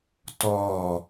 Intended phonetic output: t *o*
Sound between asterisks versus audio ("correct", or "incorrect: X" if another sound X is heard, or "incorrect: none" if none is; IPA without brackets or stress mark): incorrect: ɔ